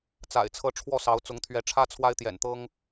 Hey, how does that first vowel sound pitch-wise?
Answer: low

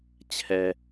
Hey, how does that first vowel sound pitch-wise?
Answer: low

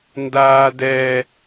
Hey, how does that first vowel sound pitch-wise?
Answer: high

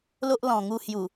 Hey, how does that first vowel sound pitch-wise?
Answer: high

